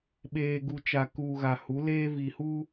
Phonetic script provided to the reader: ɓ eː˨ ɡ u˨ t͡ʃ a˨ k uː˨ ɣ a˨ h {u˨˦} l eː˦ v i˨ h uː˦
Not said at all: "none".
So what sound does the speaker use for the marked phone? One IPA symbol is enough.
u˨˦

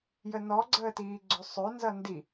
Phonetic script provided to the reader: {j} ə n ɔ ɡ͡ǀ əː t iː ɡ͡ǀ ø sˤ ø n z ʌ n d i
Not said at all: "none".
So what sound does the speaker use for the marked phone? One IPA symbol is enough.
j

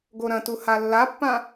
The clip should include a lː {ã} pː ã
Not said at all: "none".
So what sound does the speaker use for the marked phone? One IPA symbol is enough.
a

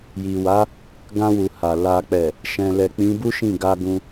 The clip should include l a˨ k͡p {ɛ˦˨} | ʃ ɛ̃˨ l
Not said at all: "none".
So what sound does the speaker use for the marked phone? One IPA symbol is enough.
ɛ˨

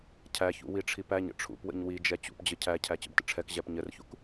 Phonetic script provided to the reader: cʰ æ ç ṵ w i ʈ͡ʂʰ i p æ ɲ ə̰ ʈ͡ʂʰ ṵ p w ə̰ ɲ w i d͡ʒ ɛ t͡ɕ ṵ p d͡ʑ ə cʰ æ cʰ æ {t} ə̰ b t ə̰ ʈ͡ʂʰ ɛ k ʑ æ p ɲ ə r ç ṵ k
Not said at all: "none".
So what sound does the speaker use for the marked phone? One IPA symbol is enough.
t͡ɕ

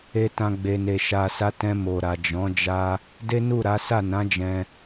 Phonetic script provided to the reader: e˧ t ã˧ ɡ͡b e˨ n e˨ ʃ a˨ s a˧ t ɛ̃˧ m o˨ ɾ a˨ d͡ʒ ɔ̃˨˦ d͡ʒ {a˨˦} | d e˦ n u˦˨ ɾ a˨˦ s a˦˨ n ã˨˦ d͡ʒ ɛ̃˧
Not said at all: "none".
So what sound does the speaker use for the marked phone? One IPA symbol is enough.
a˦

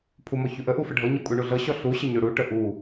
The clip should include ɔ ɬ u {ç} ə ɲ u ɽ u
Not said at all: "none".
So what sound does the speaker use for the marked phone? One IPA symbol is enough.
ɕ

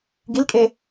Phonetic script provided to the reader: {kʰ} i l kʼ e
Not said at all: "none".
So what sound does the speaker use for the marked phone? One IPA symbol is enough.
ɡ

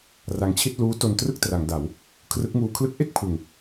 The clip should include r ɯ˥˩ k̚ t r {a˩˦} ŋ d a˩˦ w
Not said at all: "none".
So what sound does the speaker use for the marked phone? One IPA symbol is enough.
a˩˦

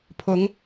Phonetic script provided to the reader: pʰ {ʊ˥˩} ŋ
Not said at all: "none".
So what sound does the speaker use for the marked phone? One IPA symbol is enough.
ʊ˧˥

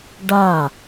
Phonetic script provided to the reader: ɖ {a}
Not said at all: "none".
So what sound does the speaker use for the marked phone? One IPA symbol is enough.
a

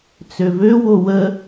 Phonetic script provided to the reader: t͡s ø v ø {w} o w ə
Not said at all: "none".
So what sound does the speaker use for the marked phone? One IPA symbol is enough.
w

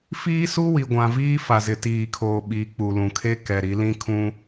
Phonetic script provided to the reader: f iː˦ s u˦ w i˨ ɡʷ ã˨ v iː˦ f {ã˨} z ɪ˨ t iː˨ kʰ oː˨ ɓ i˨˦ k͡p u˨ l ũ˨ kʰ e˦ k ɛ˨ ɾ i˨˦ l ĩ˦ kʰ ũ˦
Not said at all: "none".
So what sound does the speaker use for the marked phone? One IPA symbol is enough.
a˨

